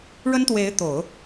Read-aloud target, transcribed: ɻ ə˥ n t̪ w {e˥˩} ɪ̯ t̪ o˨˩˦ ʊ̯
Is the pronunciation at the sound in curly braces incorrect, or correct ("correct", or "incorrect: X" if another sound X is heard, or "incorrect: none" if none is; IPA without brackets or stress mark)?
incorrect: e˧˥